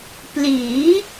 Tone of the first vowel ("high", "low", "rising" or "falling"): rising